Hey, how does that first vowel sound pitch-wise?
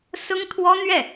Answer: high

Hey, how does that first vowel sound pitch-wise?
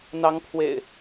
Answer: rising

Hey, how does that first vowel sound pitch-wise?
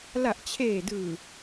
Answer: low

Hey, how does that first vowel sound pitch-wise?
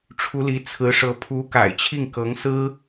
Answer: rising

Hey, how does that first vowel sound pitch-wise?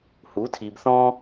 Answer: rising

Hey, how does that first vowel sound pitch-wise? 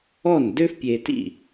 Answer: falling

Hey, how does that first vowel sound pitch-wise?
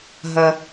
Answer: low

